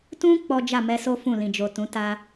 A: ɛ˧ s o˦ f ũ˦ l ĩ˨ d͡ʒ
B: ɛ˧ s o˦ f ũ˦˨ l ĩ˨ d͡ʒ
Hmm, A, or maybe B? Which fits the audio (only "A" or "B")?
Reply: B